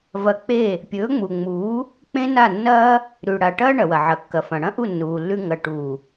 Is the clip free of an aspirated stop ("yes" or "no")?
yes